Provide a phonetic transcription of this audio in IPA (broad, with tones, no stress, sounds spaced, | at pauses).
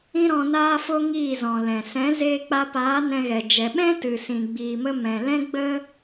ĩ˦ ɾ ɔ̃˧ n aː˦ f o˦ ŋ iː˦˨ z ɔ̃˨ l ɛ̃˨ s ɛ̃˨˦ z eː˧ k͡p a˧ p aː˨˦ n ɛ̃˧ ɣ ɛ˨ d͡ʒ ɛ˨ ɓ ɛ̃˦ t ɨ˨ s ĩ˨ ɡ͡b iː˨ m ə˧ m ɛ̃˨ l ɛ̃˦ ɡ͡b ə˦